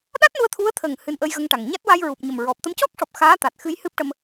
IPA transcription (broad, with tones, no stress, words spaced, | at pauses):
ɗa˦˥t̚nu˧ə̯ t̪ʰu˧˥ə̯t̪ʰə˨˩ŋ hɨ˧nʔə˧jɣə˧ŋʈa˨˩ŋ ɲa˦˥t̚wa˧jɹu˨˩p̚ɲə˨˩m ɹɔ˨˩p̚t̪ə˧mcɔ˦˥k̚ʂɔ˨˩p̚ xaː˧˥t̪a˨˩t̚xɨ˧j hɨ˦˥p̚ʈə˧m